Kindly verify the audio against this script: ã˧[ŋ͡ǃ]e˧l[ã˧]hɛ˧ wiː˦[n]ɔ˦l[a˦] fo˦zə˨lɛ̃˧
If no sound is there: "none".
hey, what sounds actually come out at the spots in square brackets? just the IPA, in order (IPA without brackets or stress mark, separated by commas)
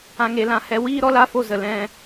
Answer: ŋ, ã˧, ɾ, a˦